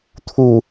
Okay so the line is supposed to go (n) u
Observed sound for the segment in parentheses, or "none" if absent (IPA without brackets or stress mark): t̪ʰ